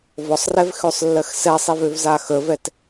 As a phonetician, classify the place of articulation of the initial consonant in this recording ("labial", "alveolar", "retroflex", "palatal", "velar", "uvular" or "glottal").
labial